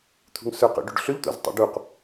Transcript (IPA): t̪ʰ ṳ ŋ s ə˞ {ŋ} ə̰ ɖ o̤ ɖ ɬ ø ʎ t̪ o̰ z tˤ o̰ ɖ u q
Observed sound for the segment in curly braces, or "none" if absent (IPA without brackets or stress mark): q